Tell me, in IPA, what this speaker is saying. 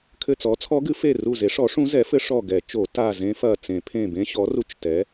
kʰ ɘ˧˩ t͡s ɔ˩˥ t͡sʰ ɔ˧˥ ɡ ɨ˩˥ f e˧˩ r u˧˩ z e˩˥ ʂ ɔ˩˥ ʂ ũ˧˥ z ɛ˩˥ f ɘ˧˥ ʂ ɔ˧˩ ɡ ɛ˨˩˦ t͡ʃ o˨˩˦ t a˧˩ z ẽ˧˥ f ɐ˧˩ t͡s ẽ˨˩˦ pʰ ẽ˧˩ b ẽ˧˥ ɕ ɔ˩˥ r u˧˥ t͡ʃ t ɛ˩˥

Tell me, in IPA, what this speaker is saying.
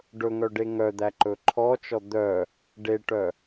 ɖ ɵ ŋ œ ɖ e ŋ œ d̪ æ ǃ ɵ ǃʰ ɔ t͡ʃ ɔ d̪ œ | ɖ e ʈ œ

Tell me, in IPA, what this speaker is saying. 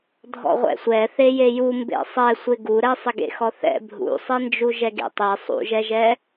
dʱ ɔ̰ ʁʷ ɛ̰ sʷ ɛ θ e j e j u m b ḛ sˤ ɛ sʷ ɪ ɡ u ɾ ɛ sˤ ɪ ɡ ḛ x ɔ θ ɛ̰ bʱ ṵ sˤ e n d͡ʒ u ʒ ɛ ɡ ḛ tˤ e sˤ ṵ ʒ ɛ ʒ ɛ

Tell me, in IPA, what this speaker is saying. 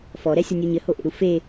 f ɔ ɾ ɛ sʲ ɔ nʲ u ɲ ɘ h o ʔ ḛ ɾ u f e

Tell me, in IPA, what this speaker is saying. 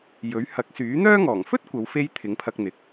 j ɵ˨˥ ɥ h ɐ˨˥ k̚ s yː˨˥ n̪ œː˥ ŋ ɔː˨˩ ŋ f ɵ˥ t̚ kʷ ɐ˨˧ w f e˧ j t̪ʰ ɪ˨˥ ŋ pʰ ɐ˧ k̚ n̪ ɪ˨˥ k̚

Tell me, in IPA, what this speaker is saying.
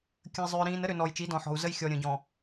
kʲ ə̃˨ i̯ zˤ ʏː˨ ɾ ĩː˨ n ə˦ ɾ ʏ˨ n ɔ˨ j t͡ʃ i˨˦ d ɔ̃˨ ħ ɔ̤˨ u̯ z ə˦ j xʲ ɔ˨ ɾʲ ə̃˨ ɟ ɔ̃˨

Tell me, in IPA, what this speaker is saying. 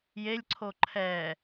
j e lʲ ǀʰ o ǃʰ ɛ

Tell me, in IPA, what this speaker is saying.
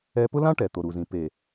ɛ˨ p ʊ˦ l ã˦ ʈ ɛ˨ t̪ o˨ ɾ u˨ z ĩ˨ p e˨

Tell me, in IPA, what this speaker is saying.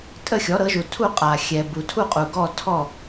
tʼ ə˥˨ xʲ ɔ˩˥ ɾ ɤ˩˥ ʒ u˨ tʰ u˥˨ qʼ a˨ xʲ ɛ˨ b u˨ tʰ u˥˨ qʼ u˨ ɡ ɔ˥˨ tʰ ɔ˥˨

